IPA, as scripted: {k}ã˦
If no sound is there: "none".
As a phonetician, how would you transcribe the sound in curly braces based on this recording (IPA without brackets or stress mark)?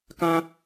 k